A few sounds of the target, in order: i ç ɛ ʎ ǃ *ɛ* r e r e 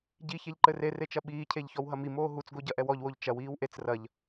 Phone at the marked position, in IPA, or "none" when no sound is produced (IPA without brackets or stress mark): ɘ